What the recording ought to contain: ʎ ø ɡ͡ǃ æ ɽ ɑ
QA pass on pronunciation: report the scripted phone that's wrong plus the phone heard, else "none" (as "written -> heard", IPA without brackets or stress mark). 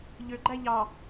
ɽ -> ʎ